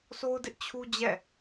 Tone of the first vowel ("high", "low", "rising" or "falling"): high